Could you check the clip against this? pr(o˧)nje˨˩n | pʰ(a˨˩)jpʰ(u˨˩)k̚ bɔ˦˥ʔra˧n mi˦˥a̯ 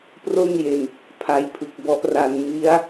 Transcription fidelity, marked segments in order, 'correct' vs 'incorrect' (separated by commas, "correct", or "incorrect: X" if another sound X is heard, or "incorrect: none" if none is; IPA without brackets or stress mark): incorrect: o˥˩, incorrect: a˦˥, incorrect: ɯ˨˩